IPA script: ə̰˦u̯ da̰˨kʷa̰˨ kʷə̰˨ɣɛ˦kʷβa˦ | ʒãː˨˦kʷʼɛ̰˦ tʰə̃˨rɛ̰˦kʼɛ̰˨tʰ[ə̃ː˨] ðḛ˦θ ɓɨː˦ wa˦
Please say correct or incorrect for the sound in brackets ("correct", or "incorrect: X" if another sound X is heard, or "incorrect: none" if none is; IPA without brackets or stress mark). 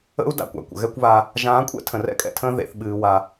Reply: incorrect: ə̃ː˦